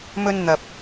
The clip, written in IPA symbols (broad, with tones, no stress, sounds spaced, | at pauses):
m ɵ˧ n n̪ ɐ˨ p̚